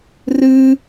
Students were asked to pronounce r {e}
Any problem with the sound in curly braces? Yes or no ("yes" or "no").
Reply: yes